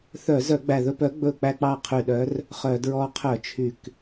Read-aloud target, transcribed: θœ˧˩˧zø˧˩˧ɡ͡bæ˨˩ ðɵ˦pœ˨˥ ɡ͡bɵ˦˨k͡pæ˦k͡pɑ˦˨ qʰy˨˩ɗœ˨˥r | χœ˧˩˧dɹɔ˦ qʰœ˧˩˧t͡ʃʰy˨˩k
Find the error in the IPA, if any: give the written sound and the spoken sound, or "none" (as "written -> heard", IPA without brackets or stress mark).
ø˧˩˧ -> œ˧˩˧